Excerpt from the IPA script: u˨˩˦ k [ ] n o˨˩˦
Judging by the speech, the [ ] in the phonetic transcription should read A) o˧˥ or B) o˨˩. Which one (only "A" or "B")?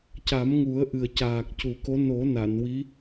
A